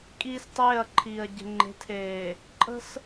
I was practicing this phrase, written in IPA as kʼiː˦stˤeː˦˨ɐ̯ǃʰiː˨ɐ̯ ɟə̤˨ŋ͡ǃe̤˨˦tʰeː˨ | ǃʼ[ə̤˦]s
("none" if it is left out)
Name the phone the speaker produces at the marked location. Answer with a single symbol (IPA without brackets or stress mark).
ə̤˦